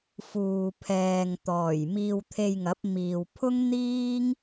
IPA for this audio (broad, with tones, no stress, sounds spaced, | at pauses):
f uː˨ pʰ ɛː˨ ŋ t̪ ɔː˨˩ j m iː˧ w t̪ʰ e˧ j ŋ ɐ˨˥ p̚ m iː˨ w pʰ ʊ˥ ŋ n̪ iː˥ ŋ